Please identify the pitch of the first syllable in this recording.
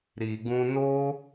low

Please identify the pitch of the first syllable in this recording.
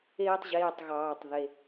high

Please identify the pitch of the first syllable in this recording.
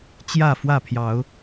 falling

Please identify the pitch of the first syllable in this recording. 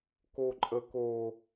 high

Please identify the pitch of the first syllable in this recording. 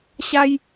high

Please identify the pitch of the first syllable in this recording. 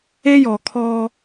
high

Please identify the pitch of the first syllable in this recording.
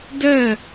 falling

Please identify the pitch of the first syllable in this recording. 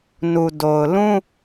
low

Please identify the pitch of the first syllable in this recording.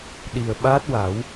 low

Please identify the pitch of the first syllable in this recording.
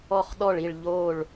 falling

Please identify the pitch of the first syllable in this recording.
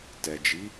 low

